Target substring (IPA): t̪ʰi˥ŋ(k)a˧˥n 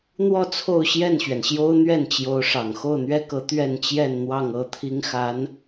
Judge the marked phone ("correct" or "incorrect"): incorrect